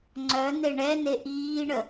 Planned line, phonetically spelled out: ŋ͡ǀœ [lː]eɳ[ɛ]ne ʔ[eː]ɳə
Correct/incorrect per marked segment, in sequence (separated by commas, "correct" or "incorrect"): incorrect, correct, incorrect